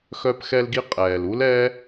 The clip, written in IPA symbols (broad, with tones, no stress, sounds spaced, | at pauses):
x œ˧ p x ɛ˧ l ɡ i˧ qʼ ɛː˨ l u˦ l ɛ˦